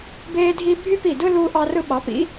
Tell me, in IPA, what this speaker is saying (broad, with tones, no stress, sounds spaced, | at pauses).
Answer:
b eː˦ dʱ i˦ bʱ y˦ p i˧˩ d ɯ˦ l u˦ ʔ ɑ˦ r ɯ˦ ɓ ɑ˩˥ p ḭ˩˥